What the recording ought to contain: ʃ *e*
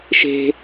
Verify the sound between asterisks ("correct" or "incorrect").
incorrect